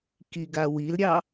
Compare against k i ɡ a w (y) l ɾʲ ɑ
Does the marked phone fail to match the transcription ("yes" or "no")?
yes